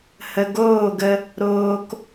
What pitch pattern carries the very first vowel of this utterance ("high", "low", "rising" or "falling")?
low